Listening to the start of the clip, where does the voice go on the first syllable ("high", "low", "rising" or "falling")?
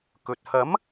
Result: low